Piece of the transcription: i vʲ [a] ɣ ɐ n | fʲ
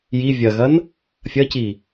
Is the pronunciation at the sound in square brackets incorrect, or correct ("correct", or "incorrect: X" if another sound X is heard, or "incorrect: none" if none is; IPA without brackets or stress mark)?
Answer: incorrect: ɐ